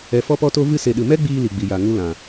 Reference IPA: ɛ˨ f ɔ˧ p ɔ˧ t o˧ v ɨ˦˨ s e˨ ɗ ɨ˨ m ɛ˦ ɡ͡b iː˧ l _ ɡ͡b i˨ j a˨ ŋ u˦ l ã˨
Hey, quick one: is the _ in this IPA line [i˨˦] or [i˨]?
i˨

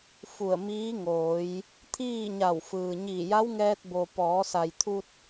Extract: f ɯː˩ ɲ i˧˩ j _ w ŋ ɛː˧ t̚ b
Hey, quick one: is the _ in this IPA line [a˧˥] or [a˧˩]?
a˧˥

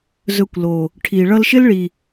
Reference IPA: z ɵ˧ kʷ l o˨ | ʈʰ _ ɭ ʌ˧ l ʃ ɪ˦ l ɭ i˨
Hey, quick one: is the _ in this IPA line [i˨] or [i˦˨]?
i˨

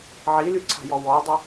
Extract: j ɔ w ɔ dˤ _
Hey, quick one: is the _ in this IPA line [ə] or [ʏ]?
ə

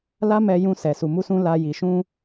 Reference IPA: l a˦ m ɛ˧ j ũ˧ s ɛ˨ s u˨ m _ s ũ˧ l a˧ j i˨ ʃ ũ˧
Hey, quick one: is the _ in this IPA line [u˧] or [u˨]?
u˧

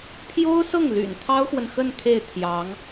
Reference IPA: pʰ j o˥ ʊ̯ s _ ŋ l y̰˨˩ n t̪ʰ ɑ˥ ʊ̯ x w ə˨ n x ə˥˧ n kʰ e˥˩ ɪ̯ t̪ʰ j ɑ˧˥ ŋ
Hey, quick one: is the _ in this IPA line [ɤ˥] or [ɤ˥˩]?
ɤ˥˩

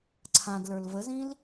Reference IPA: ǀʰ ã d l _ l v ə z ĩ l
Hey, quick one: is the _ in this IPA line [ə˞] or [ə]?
ə˞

